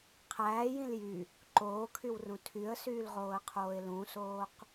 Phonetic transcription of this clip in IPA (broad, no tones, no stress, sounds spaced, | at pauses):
qʰ æː j ĩ l j y | ǃ oː kʰ y w r ũ tʰ y ə̯ s yː l ʁ oː ə̯ qʰ oː ɪ̯ l ũ s oː q